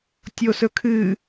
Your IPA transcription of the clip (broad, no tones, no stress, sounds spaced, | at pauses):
tʲ o s ɵ kʰ ɨ